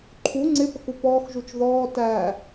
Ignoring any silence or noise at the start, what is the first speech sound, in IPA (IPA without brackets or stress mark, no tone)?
ǃʰ